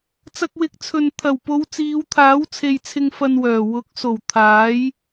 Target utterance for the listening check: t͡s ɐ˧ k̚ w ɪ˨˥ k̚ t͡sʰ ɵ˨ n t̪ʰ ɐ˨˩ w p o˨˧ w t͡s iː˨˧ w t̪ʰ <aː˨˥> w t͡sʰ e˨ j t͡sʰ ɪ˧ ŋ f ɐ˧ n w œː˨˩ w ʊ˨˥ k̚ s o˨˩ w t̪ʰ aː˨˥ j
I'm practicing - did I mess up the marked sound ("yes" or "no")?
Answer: no